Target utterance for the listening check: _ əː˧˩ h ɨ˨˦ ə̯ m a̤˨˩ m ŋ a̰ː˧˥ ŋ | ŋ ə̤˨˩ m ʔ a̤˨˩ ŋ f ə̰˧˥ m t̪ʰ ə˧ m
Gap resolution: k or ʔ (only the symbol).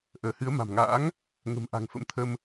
ʔ